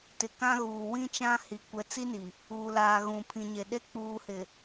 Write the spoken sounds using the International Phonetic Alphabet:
tɪ˨ kã˦ɣuː˨ wĩ˦t͡ʃã˦hi˨ kʷɛ˨˦t͡si˦ni˨ | uː˨laː˨ ɣũ˨pʰĩ˨ɲe˨ɗe˦ k͡puː˨hɪ˨

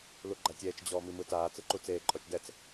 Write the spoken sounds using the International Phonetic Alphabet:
luɡ͡ǃatʲɛːt͡ʃ d͡ʑɔːmimɯtaː t͡sɯǃut͡seː ǃʼɔt͡ʃdɛt͡s

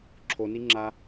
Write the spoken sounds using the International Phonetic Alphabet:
ǁʰoniŋ͡ǁa

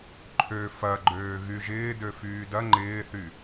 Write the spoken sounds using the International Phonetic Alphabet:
ǃʰø fɐɡ͡ǃøː ɣyʒɪː døfyːdɐ ŋ͡ǃɪːθy

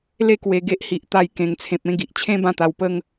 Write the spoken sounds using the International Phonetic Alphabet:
le˧kwe˨˩ ɡe˦ʔhi˨ʔt̪a˧j kẽ˨˩ŋt͡sʰẽ˨p̚ẽ˧ ɡi˨ʔt͡ɕʰẽ˦ bã˥˧t̪a˧wpə˦ŋ

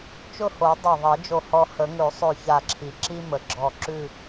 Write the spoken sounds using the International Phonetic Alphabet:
t͡ʃʊ˥˧ho˨˩˦ dˤa˧˩ðˤe˨˩˦d͡ʒo˧˩hɔ˧ hə˨˩˦ŋʉ˨˩˦sˤʉ˧˩ ça˧˩ǁʰi˩ ǁi˥mə˩ɡ͡ǁɔ˧˩ǁʉ˥˧

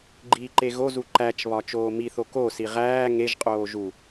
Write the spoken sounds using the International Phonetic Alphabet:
ɡ͡ǃiːǃeɣozu ǃæt͡ʃβɒ t͡ʃoːmiθo kosi ʁæː ŋeʒqʼoː ʒu

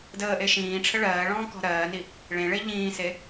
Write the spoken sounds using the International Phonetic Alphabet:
dəːʔe ʃĩːʈ͡ʂʰə ɭɜːɭɔ̃ːkɔ̤ ɾɜːni | ɭẽɭe ʎĩːse

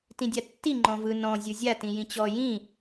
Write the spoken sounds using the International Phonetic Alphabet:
tĩdʲatːi ŋ͡ǃɔ̃vɯ nɔ̃ zʲɯzʲa tĩjĩt͡ɕɔ jĩ

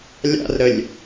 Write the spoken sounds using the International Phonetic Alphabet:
lʲa̰rɾəlʲ

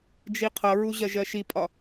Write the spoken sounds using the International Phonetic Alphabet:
d͡ʒiqʰʌɹu ʑɜʒɜʃipʼɒ

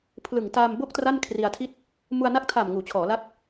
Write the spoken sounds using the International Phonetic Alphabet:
pʰlɯ˨˩ŋ ta˧mbo˥˩k̚ tra˥˩nkʰri˧a̯tʰi˥˩t̚ | mu˧a̯na˦˥k̚tʰa˨˩m ŋuː˩˦t͡ɕʰɔː˩˦la˦˥k̚

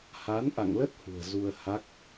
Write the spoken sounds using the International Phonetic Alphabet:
ha˨˦nʔa̰˧˨ŋlə˦˥t̚ hṳ˨˩ə̯zu˧ə̯ha˦˥k̚

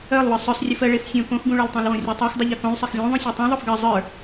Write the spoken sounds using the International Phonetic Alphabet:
ɜlˠwɯ sˤœsˤrʲɯf ɜɭefsʲõ kõxɡũɭə˞ltˤœ̃l wõrʲutˤɜx dˤɯʎœkõlˠsˤex lʲõ ðˤũsʲotˤõ ðˤofɡɜ zˤə˞

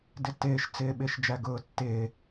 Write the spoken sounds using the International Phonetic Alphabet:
dɪtɪːʃt͡sɪː ɓɪːʃd͡ʒæɡʊːtːɪː

